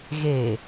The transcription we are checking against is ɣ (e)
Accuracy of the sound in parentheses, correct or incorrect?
correct